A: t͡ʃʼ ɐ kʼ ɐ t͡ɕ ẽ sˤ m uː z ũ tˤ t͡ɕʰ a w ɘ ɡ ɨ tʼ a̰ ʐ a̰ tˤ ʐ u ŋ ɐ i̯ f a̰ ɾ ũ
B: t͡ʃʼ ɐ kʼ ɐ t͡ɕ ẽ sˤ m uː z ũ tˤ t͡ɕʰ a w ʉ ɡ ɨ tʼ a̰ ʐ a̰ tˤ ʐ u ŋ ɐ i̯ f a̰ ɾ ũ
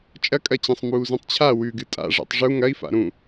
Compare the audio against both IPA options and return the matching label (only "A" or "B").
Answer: B